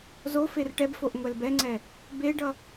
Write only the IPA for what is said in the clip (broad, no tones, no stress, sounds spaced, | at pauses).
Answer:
z o f e r ʈ ɛ b f o ʔ ŋʷ ɛ l b ɛ ŋ͡ǀ ɛ | b e ɖ ʌ